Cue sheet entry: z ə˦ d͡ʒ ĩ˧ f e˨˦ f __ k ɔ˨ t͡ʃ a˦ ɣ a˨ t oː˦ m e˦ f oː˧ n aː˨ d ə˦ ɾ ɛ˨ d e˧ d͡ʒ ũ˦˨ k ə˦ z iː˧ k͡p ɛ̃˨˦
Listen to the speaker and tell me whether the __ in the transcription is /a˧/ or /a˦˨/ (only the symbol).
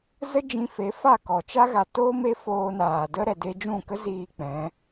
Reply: a˦˨